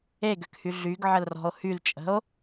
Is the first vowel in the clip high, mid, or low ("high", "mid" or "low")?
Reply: mid